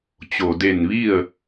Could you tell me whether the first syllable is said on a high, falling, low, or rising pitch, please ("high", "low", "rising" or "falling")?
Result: low